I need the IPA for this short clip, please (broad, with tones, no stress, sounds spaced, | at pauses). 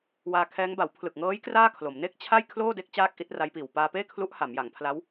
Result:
w aː˧ kʰ ɛː˦˥ ŋ b a˩˦ w pʰ l ɯ˨˩ k̚ ŋ ɤː˦˥ j k r aː˥˩ kʰ l o˩˦ m n e˥˩ k̚ t͡ɕʰ a˥˩ j kʰ l oː˥˩ d e˦˥ k̚ t͡ɕ aː˥˩ k̚ ʔ i˦˥ t̚ r a˦˥ j p iː˨˩ w p aː˧ p eː˥˩ kʰ l u˦˥ ʔ h a˩˦ m j a˩˦ ŋ pʰ l a˦˥ w